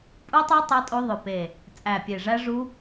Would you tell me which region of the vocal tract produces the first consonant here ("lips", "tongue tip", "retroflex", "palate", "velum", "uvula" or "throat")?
lips